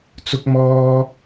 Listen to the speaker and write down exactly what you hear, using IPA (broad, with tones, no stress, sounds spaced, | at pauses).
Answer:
t͡s ʊ˥ k̚ m ɔː˥